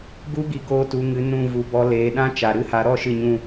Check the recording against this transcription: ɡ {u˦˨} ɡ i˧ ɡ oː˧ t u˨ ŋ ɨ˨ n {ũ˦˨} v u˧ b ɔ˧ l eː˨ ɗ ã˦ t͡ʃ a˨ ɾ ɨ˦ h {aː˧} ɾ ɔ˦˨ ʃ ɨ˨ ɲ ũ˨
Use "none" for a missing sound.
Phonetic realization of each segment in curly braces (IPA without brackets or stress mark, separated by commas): u˦, ũ˦˨, a˧